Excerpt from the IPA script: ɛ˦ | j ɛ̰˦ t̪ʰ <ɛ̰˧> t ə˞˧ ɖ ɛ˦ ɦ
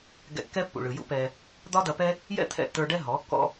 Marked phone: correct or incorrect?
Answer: correct